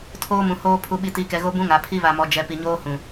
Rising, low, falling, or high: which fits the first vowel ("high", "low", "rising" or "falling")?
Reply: high